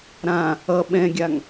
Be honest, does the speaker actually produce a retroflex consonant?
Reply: no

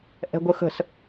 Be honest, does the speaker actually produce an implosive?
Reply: no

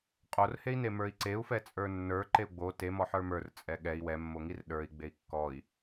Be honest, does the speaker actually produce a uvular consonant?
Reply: yes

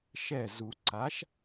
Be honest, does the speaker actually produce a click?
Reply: yes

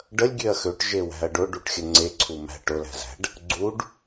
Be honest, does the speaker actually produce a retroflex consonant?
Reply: yes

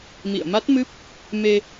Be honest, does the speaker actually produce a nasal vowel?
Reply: no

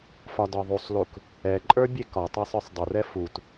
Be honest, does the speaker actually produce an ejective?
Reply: yes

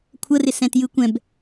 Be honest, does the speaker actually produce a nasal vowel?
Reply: yes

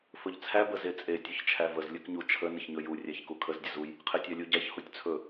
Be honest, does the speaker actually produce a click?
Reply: no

